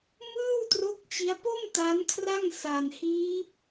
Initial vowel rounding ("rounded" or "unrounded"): unrounded